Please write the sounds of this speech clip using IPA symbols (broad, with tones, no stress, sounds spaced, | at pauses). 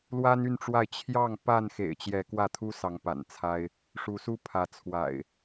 l w a˦ n y˥˨ n ʈ͡ʂ w a˥˨ ɪ̯ t͡ɕʰ j ɑ˥˨ ŋ p a˥˨ n x ḛ˨˩ ɪ̯ t͡ɕ j ɛ˨˦ k w ä˥˨ t̪ʰ u˦ s ɑ˨˦ ŋ p a̰˨˩ n t͡sʰ a˦ ɪ̯ | ʂ u˨˦ s u˦ pʰ ä˨˦ t͡sʰ w a̰˨˩ ɪ̯